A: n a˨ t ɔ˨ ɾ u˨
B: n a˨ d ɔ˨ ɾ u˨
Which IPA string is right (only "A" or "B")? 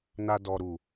B